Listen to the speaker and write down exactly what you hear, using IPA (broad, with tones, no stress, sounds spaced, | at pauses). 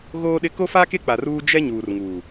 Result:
ɣ oː˦ ɗ ɪ˦ k o˦ f a˦ k e˦ k͡p a˨ r uː˦ d͡ʒ ɛ˦ ɲ uː˨ r ŋ uː˨